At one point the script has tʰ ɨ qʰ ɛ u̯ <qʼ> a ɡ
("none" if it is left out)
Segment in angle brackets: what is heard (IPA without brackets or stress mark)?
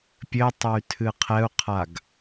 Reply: qʰ